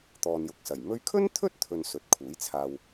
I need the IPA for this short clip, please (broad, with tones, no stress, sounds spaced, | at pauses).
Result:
t̪ ɔː˨ n j ʊ˨ k̚ s ɐ˨˩ j m ɵ˧ ɥ kʰ ɵ˥ n t̪ʰ ɵ˥ t̚ t̪ʰ ɵ˧ n s ɵ˨˥ t̚ kʰ uː˨˥ j t͡sʰ aː˧ w